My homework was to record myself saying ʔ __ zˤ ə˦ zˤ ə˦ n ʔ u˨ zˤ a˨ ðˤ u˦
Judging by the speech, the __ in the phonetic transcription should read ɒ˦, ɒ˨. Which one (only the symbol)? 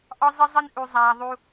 ɒ˦